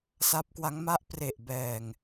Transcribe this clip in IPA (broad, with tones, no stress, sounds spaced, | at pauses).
s a˦˥ p̚ k w a˦˥ ŋ m a˥˩ ʔ p r e˨˩ ʔ b ɛː˨˩ ŋ